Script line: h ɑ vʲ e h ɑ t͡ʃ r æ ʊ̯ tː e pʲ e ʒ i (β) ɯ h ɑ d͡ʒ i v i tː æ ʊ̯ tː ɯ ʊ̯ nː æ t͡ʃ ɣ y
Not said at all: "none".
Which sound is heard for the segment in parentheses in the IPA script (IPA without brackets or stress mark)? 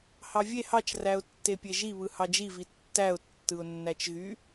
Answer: β